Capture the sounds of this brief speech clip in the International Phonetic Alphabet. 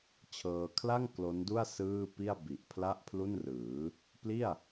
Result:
t͡ɕʰɤː˧ kʰla˥˩ŋ klo˦˥ndu˥˩a̯ sɯː˥˩pi˥˩a̯ bi˨˩ʔ pʰla˥˩ʔpʰlu˥˩nrɯː˩˦ | pli˥˩a̯

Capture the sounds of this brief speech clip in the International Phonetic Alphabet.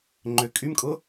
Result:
ŋ͡ǃʏ kʼymkʼʊ

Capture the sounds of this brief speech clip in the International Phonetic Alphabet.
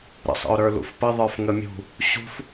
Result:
ɾə̰sˤə̰ʊ̯ɾə˞ lṵfpə ðˤə˞fŋəmʲṳ | ɕṳf

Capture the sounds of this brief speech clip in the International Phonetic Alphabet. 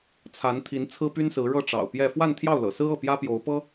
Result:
t͡sʰa˧˥nt̪ʰi˧˥n t͡sʰɹ̩˥py˥nsɹ̩˧˥ ɻɤ˥˩ʈ͡ʂɑ̰˨˩ʊ̯ pjɛ˥˧ fwa˥˧nt̪ʰjɑ˥˩ʊ̯lɤ̰˨˩sɹ̩˥ ɤ˥˩pjä˥pjo˧˥ʊ̯ pɤ˥

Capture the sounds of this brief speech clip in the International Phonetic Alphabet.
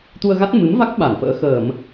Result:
t̪u˧ə̯ɣa˦˥t̚ mɨ˨˦mva˦˥k̚ ɓa˧˩nfə̰ː˧˥ xəː˧˩˨m

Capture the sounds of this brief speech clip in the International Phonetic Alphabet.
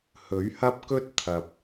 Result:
hɵ˨˥ɥhɐ˥p̚kɵ˥t̚ t̪ʰɐ˨p̚

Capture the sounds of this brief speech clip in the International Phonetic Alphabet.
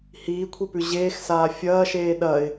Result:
hiːkʷʰipʉ ʑeːxsaː fʲɐːʃeː ɗɐɪ̯

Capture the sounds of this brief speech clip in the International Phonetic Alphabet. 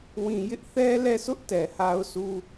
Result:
wĩ˨ jɪ˦ʔθɛ˦ lɛ˦˨sʊ˦ʔ tɛ˨ha˦ʊ̯su˦

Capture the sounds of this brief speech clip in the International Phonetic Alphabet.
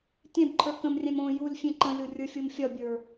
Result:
tʲɛ̃bǃʰə˞ kə̃mrʲɛ̃m õ julʲ fʲẽǃə̃lʲo rʲə˞fʲomfʲɒbʲə˞

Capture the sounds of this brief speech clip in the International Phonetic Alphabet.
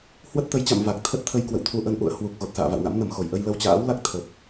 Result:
hwə˦˥t̚t̪ə˨˦jt͡ɕa̰˧˨m va˨˩k̚ t̪ʰə˦˥t̚t̪ʰə˧j kwə̰˧˨wt̪ʰu˧ʔə˧n ʔṵ˧˨ə̯hwu˨˩k̚ ɣo˨˩t̚sa̰ː˧˨va̰˧˨wna̰˧˥m nə˧˩mxo˧˩jʔə˧j lə˧wt͡ɕa̰ː˧˥wla˦˥k̚ t̪ʰə˨˩p̚

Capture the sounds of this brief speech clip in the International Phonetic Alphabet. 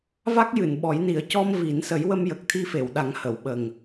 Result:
va˦˥k̚jɨ˨˩˨n ɓɔ˨˩˦jni˨˩˦ə̯ cɔ˧m vi˨˩˦n sə˨˩˦jwə˧m jə˨˩k̚t̪ʰi˧fe˨˩˨wɗa˨˩˦ŋ hə˨˩˨w ɓə˨˩ŋ

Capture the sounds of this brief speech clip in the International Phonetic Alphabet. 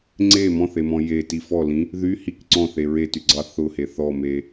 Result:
ŋ͡ǀe mɔ̃θemɔ̃ jeti fɔlĩ | ðy hik ǀɔ̃θe ɹetyɡ͡ǀɑ θʊhe θɔme

